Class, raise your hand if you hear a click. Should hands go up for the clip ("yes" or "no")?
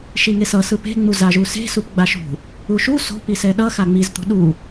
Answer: no